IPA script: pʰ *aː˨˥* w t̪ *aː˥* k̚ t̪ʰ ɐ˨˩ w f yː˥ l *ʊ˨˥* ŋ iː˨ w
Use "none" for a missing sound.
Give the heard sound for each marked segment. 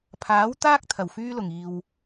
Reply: aː˨˥, aː˥, ʊ˨˩

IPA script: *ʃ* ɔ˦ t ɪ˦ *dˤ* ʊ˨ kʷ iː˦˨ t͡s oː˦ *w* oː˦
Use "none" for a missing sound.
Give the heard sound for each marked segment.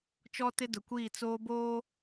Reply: t͡ʃ, d, b

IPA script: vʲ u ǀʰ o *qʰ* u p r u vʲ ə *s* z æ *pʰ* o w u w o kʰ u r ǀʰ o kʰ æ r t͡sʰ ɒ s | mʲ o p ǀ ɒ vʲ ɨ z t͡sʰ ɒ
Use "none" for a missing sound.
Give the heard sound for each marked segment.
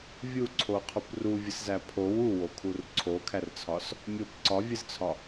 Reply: qʰ, s, pʰ

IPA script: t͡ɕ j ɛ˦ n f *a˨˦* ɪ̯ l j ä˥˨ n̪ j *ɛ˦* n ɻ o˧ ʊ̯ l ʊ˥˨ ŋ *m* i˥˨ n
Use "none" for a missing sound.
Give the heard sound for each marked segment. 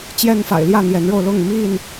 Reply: a̰˨˩, ɛ˨˦, m

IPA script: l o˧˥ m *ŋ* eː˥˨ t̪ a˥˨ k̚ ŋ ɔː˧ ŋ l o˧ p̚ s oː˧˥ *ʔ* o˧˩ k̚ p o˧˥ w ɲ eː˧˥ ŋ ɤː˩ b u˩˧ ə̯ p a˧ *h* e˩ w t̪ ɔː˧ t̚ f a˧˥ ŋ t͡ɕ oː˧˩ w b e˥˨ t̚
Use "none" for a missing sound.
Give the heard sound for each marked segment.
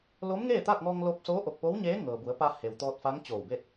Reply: ŋ, ʔ, h

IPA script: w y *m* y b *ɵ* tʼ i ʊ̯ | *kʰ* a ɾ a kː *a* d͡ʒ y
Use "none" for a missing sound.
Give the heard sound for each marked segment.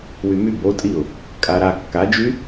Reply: m, o, kʼ, a

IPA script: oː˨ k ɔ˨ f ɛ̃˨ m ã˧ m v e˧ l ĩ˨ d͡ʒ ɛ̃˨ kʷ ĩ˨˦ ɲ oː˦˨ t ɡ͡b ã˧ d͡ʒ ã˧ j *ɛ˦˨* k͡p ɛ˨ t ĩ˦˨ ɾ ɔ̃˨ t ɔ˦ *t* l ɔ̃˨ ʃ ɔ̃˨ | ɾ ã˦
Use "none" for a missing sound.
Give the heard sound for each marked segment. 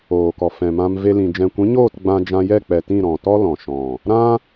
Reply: ɛ˦˨, none

